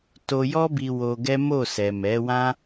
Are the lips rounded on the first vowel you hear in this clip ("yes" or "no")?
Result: yes